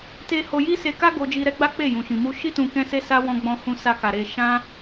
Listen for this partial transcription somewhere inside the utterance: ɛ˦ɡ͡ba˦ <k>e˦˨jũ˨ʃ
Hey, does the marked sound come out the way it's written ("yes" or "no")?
no